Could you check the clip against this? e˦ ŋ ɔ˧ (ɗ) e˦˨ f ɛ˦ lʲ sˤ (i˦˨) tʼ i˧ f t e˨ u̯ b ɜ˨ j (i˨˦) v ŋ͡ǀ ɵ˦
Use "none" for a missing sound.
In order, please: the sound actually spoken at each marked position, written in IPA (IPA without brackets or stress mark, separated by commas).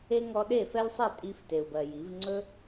ɗ, i˦˨, i˨˦